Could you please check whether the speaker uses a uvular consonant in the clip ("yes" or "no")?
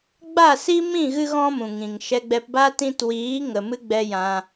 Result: no